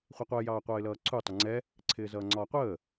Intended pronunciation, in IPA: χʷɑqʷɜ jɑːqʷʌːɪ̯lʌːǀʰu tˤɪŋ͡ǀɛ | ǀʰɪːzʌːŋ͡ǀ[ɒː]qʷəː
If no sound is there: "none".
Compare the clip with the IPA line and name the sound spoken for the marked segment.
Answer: ɒː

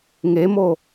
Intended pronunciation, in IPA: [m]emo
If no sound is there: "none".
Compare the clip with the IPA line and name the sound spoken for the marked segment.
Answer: ŋ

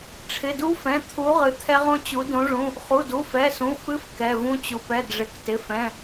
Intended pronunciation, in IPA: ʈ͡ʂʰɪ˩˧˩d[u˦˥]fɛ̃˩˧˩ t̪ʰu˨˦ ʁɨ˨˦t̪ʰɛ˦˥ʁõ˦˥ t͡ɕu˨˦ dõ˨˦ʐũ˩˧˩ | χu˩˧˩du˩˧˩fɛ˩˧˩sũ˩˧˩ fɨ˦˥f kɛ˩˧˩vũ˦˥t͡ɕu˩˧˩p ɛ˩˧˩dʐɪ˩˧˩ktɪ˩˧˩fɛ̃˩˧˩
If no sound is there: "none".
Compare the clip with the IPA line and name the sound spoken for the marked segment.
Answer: u˦˥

